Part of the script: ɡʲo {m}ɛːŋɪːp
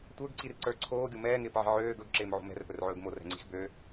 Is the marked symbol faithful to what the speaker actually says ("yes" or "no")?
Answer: yes